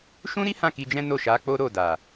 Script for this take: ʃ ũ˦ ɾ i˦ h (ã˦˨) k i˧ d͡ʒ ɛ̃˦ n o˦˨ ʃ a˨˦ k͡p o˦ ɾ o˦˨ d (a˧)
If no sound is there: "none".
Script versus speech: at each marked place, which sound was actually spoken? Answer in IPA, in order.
ã˦˨, a˨

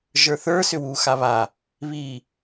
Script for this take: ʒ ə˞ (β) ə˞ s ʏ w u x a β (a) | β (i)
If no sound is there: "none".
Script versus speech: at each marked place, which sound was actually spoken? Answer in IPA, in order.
θ, a, i

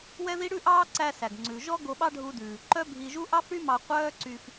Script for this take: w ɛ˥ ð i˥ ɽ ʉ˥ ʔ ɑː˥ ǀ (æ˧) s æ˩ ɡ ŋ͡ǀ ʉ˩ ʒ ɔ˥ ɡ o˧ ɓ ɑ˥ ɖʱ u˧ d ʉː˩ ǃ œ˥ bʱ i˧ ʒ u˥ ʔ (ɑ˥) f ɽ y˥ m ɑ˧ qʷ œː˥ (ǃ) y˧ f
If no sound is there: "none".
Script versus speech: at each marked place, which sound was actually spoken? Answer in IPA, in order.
æ˧, ɑ˥, ǀ

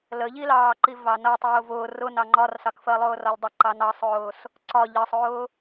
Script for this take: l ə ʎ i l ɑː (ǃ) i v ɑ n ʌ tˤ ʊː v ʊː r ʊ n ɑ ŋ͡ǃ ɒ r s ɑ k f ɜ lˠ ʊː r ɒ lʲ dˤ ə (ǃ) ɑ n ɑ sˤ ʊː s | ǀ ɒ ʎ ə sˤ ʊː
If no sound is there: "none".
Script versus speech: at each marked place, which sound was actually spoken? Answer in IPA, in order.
ǃ, ǃ

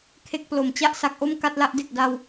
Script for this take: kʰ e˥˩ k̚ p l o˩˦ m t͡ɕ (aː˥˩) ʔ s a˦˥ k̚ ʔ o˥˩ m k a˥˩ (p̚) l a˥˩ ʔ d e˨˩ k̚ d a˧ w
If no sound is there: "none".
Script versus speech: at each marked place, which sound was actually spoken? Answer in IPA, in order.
a˥˩, t̚

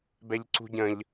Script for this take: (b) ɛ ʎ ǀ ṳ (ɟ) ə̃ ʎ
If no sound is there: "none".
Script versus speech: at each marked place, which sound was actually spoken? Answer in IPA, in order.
b, ɟ

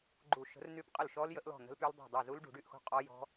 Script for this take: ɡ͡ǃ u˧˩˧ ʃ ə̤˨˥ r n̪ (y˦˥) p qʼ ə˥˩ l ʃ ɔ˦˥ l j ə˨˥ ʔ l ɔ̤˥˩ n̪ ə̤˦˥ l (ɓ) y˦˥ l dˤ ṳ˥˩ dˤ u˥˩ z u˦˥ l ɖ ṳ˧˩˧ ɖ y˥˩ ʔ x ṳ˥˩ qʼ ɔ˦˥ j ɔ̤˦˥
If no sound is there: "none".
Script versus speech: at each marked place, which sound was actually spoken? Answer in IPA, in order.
y˦˥, p

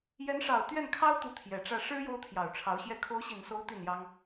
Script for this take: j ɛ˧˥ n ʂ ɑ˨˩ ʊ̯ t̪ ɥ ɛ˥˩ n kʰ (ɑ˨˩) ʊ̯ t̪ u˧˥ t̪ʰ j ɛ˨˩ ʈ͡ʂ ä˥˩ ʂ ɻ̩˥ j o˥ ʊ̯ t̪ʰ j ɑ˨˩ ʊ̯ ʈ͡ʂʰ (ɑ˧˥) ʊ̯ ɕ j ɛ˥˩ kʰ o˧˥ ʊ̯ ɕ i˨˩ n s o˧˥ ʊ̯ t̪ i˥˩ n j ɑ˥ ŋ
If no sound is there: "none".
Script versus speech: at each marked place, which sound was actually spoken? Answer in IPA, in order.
ɑ˥, ɑ˧˥

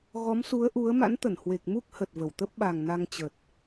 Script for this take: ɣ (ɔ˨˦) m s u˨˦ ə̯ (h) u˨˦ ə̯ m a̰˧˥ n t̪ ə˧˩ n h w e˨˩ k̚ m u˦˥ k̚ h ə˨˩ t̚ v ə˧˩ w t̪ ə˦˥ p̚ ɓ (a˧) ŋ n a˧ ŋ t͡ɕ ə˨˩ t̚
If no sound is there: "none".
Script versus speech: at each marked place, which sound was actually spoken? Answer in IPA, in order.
ɔ˨˦, ʔ, a˨˩

